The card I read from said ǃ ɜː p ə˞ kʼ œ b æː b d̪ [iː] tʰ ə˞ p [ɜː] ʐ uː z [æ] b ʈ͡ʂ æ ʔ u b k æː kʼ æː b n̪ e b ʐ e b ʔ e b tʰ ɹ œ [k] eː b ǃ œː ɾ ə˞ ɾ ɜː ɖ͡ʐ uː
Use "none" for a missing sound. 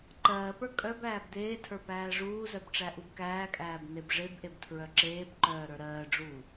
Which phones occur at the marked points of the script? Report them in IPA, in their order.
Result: eː, æː, œ, ǁ

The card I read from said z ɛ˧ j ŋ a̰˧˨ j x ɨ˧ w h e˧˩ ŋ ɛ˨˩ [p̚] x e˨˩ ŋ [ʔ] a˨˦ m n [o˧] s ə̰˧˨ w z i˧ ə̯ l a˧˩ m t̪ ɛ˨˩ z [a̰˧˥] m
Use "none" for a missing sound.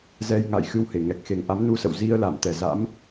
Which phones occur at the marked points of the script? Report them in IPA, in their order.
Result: k̚, ʔ, u˧, a̰˧˥

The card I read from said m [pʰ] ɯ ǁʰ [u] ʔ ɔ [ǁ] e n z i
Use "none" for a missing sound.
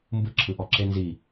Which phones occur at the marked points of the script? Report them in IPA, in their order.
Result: b, ɯ, ǁ

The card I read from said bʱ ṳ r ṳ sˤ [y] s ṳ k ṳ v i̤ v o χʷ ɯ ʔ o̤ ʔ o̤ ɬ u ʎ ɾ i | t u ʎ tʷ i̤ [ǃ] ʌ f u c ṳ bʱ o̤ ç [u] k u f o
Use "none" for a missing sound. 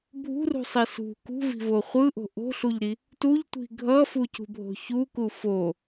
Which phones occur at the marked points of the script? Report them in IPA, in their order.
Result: i, ɡʱ, u

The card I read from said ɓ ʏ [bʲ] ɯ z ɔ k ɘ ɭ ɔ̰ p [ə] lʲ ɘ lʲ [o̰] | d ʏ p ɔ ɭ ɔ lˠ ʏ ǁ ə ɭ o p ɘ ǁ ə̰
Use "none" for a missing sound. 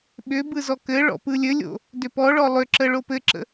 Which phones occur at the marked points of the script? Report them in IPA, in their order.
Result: b, ɯ, o̰

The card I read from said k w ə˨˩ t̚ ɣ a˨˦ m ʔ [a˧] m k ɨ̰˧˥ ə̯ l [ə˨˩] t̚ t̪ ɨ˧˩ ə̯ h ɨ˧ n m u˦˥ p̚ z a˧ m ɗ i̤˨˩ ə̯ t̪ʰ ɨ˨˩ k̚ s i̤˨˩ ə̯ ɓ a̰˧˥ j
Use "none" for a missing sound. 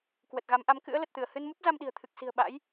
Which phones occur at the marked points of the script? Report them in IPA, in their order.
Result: a˨˦, ə˨˩

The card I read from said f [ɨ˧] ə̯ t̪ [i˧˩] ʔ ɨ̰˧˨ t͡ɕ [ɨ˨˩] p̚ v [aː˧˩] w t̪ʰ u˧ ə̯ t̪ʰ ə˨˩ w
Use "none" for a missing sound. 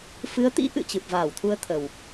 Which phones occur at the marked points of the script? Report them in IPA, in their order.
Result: ɨ˨˦, ḭ˧˥, ɨ˨˩, aː˧˩

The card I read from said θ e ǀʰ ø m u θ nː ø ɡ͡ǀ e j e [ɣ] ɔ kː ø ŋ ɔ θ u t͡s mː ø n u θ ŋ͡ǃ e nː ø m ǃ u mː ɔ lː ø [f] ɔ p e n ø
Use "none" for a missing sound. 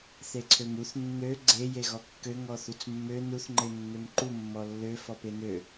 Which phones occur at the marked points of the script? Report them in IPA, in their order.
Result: ɣ, f

